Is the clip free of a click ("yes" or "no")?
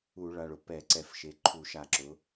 no